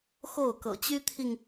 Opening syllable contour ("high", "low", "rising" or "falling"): falling